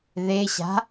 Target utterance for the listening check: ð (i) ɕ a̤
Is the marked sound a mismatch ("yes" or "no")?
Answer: yes